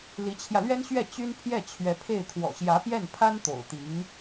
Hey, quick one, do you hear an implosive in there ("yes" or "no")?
no